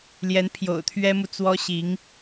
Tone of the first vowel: rising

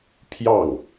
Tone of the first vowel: falling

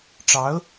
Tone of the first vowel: rising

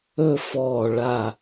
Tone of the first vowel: falling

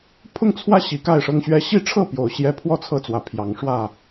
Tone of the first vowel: falling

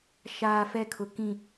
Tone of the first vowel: low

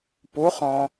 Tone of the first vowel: rising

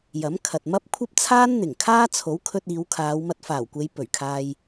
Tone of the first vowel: rising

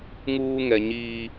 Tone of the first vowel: high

